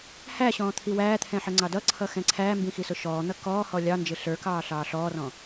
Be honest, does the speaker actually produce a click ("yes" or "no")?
yes